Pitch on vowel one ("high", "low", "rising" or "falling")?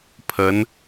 rising